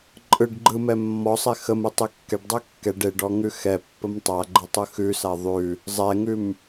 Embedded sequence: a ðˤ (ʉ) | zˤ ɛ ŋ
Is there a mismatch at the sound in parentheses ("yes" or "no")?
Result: no